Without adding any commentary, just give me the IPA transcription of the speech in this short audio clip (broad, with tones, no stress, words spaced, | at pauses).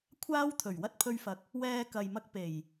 kʷʰaː˥wt̪ʰɵ˨˩ɥ wɐ˥t̚pʰɵ˧ɥfɐ˨˥k̚ | wɛː˧kɐ˨jmɐ˧k̚ pe˨˩j